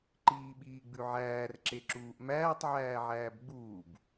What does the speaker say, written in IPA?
ǃiːɓiːɡ͡bʉʕæːr ǁeǁuːʔmæːtˤ ʕæːʕæːbɡ͡buːb

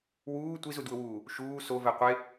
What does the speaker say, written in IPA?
wuː tʷizudwʊwuː | ʃuː sovɛ qʷe

